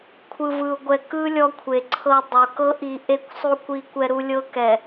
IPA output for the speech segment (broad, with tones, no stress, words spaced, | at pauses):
kʷʰɯ˨vɯ˨ʊ̯ ɡʷɛ˨kɯ˦ lʲɔ˦kʷʰe˨ ǀʰɤ˨ dˤo˨ kɤ˦ʔi˨ ʔe˦˨kʷsˤu˦kʷi˦ kʷɛ˦ɾu˦ lʲɤ˦kɛ˨